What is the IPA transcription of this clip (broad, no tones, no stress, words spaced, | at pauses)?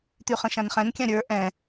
t̪yχə̃ʃãnχɛ̃n kʲãɾʲə˞ ʔɛ̃